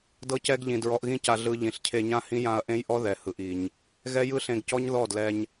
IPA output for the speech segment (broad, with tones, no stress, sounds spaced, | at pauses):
d ɤ˧ c ɛ˧ ɡ ʎ ĩ˨ d ɹ ɔ˧ ʔ ɣ ĩ˦ c a˧ ɮ ɯ˧ ʎ ĩ˨ ɬ cʰ e˧ ɲ ã˦ h ĩ˦ j ã˧ ɐ̯ ʔ ẽ˦ j ʔ ɔ˦ ð ɛ˨ h ɯ˨ ʔ i˨ ɲ | ɣ ɛ˦ j ɯ˦ ɬ ẽ˧ ɡ c ɔ˦ ɲ ð ɔ˦˨ d l ɛ˧ ɲ